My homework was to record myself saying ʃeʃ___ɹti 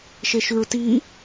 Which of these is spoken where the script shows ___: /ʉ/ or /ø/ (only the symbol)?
ʉ